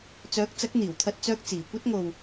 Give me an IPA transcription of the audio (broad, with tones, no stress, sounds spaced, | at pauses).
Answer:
t͡s œː˨˥ k̚ t͡s ɐ˨˥ k̚ n̪ iː˨˩ w t̪ʰ ɐ˧ t̚ t͡s œː˧ k̚ t͡s iː˨˩ kʷ ɐ˥ t̚ ŋ o˧ w